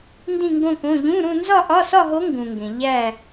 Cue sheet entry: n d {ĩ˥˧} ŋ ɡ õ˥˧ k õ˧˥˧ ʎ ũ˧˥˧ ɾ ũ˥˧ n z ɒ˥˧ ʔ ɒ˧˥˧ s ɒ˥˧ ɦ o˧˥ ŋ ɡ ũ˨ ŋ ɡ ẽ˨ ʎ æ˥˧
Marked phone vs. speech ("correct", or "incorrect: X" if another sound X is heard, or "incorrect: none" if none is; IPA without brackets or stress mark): correct